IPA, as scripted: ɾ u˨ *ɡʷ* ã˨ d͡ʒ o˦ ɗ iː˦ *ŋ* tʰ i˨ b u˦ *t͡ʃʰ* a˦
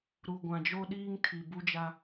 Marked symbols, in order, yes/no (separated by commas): yes, yes, no